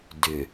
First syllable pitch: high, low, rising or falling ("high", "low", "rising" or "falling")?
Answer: low